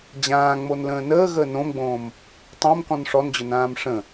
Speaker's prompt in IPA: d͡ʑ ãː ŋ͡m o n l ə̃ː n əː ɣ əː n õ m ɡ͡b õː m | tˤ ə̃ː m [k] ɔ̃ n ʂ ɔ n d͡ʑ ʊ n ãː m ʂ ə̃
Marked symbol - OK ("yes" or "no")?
yes